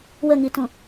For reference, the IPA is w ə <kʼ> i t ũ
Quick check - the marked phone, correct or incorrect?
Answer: incorrect